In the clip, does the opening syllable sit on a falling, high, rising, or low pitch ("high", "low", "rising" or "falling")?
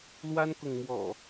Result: high